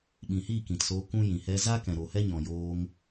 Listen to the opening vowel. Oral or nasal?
nasal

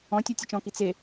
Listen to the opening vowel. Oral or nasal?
nasal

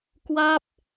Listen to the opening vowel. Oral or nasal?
oral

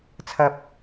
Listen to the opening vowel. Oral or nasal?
oral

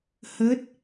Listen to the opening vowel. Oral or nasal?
oral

